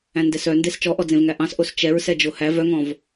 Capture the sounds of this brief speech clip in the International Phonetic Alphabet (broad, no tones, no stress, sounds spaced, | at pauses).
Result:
æ̃ n d ɛ s œ n d e s t͡ʃ ɔ ʔ ɔ d͡z ẽ v ŋ æ ʔ ɑ̃ s ʔ o s t͡ʃ ɛ ɹ s ɛ d͡ʒ o h æ v œ ŋ ɔ̃ v